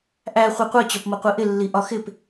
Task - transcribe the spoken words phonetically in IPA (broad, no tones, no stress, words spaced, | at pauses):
ʔæ χʷɛqʷɜ t͡ɕɒpmʌqʷiʔɪ lːiʔɒxɪp